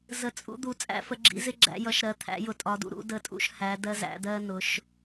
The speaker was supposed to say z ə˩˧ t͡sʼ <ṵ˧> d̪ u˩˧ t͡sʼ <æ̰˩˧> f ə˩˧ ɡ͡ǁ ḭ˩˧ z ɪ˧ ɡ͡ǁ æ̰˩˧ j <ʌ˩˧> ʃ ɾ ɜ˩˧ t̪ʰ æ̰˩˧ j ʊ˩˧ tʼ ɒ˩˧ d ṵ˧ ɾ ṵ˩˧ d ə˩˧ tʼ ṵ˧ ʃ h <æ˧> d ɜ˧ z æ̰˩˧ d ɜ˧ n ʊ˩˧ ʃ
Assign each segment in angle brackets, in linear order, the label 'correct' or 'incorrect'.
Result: correct, incorrect, correct, incorrect

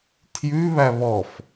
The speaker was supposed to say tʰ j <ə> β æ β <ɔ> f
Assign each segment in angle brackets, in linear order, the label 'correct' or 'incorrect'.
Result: incorrect, correct

